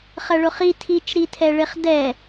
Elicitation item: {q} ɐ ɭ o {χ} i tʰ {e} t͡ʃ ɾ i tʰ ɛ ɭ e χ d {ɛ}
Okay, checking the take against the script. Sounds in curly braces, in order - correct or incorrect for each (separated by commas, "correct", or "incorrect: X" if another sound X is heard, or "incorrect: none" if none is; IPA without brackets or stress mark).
incorrect: χ, correct, incorrect: i, correct